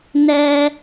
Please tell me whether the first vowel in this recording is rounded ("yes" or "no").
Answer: no